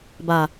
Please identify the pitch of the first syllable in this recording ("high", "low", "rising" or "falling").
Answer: low